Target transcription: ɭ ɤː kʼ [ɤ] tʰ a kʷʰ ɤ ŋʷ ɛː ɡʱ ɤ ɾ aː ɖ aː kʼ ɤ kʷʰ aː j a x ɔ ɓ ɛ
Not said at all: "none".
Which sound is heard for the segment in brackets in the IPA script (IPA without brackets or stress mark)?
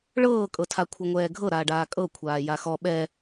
ɤ